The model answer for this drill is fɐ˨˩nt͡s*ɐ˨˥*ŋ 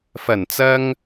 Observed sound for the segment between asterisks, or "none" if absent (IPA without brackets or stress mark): ɐ˧